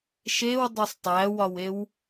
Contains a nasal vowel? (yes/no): no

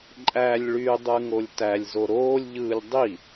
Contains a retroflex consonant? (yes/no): yes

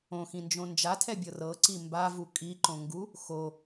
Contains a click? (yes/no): yes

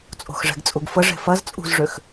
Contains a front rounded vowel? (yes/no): yes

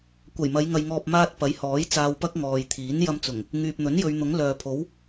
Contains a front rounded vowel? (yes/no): yes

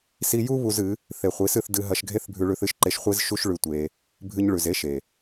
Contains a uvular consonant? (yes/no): yes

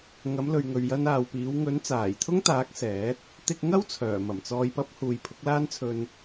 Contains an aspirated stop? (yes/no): yes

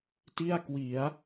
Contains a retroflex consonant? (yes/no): no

